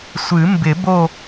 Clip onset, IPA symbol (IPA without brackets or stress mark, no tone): sʷ